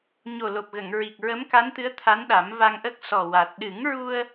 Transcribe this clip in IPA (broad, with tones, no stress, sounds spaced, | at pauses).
ɲ o˨˩ l o˨˩ p̚ ɣ ə˨˩˨ ŋ ɹ i˨˩ k̚ ɹ ə˧˥ m k a˧˥ n t̪ ɨ˧˥ ə̯ t̪ʰ a˧˥ n ɗ a˨˩˦ m v a˧ ŋ ʔ ə˦˥ k̚ s ɔ˨˩ w a˨˩ t̚ ɗ ɨ˨˩˦ ŋ ɹ u˧ ə̯